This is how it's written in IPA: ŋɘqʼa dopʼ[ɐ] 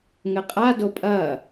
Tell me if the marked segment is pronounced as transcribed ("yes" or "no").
yes